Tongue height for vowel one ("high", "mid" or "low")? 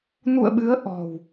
high